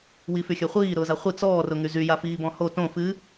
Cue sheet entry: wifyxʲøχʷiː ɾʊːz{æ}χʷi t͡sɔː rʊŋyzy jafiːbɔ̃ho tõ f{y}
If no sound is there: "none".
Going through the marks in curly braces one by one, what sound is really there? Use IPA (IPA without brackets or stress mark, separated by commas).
a, ɨ